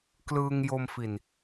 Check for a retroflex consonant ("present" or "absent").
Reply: absent